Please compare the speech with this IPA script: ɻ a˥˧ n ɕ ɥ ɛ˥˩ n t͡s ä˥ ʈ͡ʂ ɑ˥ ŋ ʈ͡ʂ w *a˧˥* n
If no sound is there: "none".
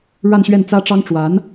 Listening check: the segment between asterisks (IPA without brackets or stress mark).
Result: a˧˥